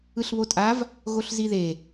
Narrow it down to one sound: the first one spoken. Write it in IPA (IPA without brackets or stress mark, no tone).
ɯ